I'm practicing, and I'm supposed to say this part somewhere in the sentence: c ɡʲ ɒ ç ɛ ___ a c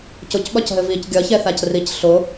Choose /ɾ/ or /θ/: θ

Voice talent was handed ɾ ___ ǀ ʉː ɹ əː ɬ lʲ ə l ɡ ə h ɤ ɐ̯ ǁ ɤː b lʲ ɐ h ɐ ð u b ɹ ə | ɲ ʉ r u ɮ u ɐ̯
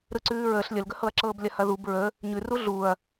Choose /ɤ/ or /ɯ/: ɯ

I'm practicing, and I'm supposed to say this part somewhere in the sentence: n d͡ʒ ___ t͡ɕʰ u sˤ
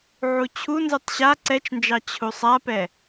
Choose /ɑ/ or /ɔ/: ɑ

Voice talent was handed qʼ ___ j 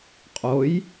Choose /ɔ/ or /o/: o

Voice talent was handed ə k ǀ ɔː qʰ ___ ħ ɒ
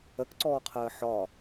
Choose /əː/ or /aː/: əː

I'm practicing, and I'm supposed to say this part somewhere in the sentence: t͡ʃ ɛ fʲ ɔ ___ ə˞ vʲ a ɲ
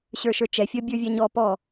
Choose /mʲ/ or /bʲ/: bʲ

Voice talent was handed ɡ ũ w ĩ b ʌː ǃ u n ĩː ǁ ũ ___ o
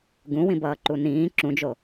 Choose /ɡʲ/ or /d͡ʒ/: d͡ʒ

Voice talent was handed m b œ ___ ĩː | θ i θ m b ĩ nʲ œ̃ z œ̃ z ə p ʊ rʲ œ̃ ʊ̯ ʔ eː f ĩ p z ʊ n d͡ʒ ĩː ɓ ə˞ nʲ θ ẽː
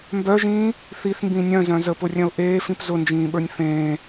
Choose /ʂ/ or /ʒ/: ʒ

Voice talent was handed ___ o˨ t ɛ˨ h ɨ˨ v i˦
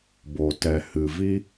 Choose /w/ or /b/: b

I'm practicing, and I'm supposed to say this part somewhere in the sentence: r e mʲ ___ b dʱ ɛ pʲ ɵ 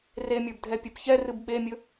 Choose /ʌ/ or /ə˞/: ə˞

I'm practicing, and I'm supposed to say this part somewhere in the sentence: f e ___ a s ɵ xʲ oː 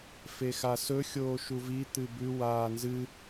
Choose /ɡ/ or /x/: x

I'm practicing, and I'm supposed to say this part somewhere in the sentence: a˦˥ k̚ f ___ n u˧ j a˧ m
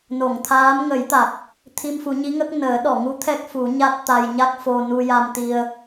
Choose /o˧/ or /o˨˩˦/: o˧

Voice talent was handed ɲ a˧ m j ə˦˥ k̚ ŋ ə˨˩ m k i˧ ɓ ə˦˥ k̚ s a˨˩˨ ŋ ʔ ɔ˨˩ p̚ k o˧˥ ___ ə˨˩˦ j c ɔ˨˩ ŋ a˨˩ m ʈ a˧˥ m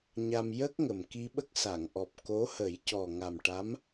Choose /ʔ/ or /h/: h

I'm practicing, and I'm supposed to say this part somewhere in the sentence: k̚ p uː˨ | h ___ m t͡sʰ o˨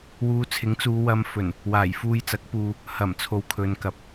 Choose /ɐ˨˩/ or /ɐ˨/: ɐ˨˩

